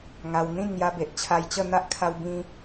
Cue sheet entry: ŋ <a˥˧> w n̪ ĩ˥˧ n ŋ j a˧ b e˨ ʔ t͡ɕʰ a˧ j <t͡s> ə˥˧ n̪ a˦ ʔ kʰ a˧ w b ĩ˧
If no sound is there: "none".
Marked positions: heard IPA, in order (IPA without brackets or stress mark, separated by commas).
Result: a˧, t͡ɕ